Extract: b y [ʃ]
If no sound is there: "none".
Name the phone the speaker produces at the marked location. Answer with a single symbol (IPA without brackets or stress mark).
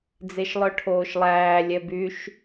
ʃ